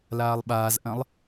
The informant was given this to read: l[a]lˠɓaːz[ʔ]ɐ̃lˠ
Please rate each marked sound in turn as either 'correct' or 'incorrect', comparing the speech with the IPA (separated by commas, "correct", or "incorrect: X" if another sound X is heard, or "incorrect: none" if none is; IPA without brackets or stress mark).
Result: incorrect: aː, correct